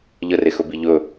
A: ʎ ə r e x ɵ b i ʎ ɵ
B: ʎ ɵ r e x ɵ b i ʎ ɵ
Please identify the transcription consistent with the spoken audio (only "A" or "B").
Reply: A